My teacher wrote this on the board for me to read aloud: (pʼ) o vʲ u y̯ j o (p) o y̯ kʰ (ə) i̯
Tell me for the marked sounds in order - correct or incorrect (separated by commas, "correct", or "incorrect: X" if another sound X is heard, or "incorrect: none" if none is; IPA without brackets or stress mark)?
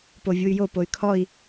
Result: incorrect: p, correct, incorrect: ɔ